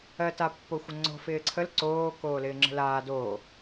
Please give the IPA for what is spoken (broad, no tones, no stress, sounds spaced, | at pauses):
ɜ t a pː o xʷ ə ŋ͡ǀ o̤ f ɪː ǀʰ ə l ǀ oː k oː l ɪː ŋ͡ǁ ə̤ l aː d oː